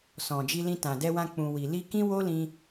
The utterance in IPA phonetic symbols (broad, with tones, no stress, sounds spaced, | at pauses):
s ɔ̃˨ d͡ʒ i˧ l ĩ˧ t ã˨ d ɛ˧ w ã˧ k͡p ũ˨ w i˨ l i˧ k ĩ˦ w o˦ l ĩ˧